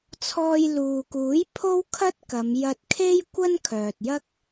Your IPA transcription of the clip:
t͡sʰɔː˧jluː˨kuː˨˥j pʰo˥wkʰɐ˥t̚kɐ˨˧m jɐ˧t̚kʰe˥jkʷɐ˥n kʰœː˨t̚jɐ˥k̚

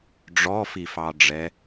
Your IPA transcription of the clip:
ɖ͡ʐɔfifɑɖ͡ʐɛ

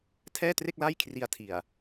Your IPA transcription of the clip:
tʰɛː˥˩tre˥˩k̚la˥˩j kʰri˧a̯tʰi˨˩a̯

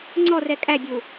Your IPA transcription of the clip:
ŋ͡ǀɔrɛ kʼæbʲu

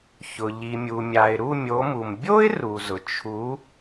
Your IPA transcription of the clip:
çʊ˩ ʎi˩mʲu˩mʲa˩ɪ̯ ɾu˥˧mʲo˨˦mu˩m bʲo˥ɪ̯ ru˩zʊ˩ t͡ʃʰu˨˦

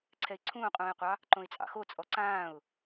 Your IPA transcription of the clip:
ǀʰɛɪ̯ǀʰũːqʼũːɪ̯qʷɑ | ǃõɪ̯t͡sʼɑ̰xo t͡sʼɔǀãːʊ̯

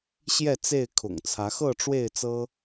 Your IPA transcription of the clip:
ɕjɛ˥˨t͡se˥˨ɪ̯ kʰʊ̰˨˩ŋt͡sʰä˨˦xɤ˥˨ ʈ͡ʂwe˥˨ɪ̯t͡sɤ˦

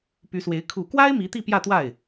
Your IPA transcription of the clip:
py˧˥swe˧˥ɪ̯ kʰu˨˩kwa˥ɪ̯ mi˧˥t̪i˥˧pjä˥˧t̪wa˥˩ɪ̯

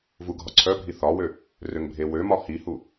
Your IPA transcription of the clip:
vuɡʱɒǀʰœbʱi θɒwø | røŋbʱewømɒ hihu

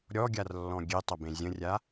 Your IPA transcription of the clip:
ɾʲɔɡʲarlːɔ̃ ɡʲetˤɐbẽ zʲə̃rʲa

